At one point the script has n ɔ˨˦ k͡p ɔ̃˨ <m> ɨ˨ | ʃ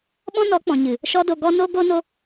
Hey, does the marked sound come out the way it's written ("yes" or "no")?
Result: no